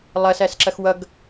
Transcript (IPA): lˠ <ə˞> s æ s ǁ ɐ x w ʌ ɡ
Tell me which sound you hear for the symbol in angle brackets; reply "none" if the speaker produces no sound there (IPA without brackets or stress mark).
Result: ɐ